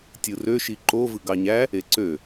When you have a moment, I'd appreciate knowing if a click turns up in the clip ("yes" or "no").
yes